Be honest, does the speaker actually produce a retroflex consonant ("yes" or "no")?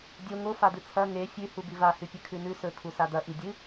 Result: no